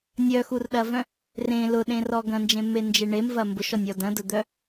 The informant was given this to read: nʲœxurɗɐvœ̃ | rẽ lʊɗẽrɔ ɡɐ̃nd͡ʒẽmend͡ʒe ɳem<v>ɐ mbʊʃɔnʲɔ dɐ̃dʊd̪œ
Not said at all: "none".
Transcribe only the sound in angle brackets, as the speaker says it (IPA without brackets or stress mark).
v